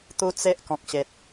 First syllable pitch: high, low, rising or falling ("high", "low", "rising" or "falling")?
high